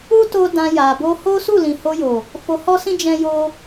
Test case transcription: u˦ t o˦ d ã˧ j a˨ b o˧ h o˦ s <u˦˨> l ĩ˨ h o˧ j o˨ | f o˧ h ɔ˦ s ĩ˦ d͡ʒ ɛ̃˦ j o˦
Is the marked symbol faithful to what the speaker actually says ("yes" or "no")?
yes